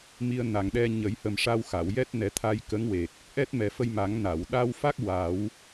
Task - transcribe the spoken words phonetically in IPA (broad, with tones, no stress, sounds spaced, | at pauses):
m i˧ ə̯ n a˨˩ ŋ ɗ ɛ˧ ɲ ə˨˩˦ j h ə˨˩ m ʂ a˧ w x a˨˩˨ w j ɛ˦˥ t̚ n ɛ˨˩˦ t̪ʰ a˧ j k ə˧˥ ŋ w e˨˩ k̚ | ʔ ɛ˦˥ t̚ m ɛ˨˩ f ə˧ j m a˨˩˦ ŋ n a˨˩˨ w ɗ a˧ w f a˦˥ k̚ w a˨˩˦ w